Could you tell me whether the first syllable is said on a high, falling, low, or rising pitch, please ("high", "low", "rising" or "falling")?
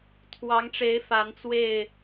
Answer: rising